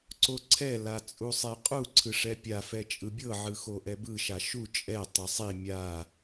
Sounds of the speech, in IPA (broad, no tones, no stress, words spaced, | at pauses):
ǀoǀʰɛ lat͡sʼusˤeqʼu ǀʰɯʂɛpʲa fɛt͡ʃʼɯbʲɤ ʕɯxoʔɛbɯ ʃaʃu t͡ʃʼɛ tˤɤsˤi mʲa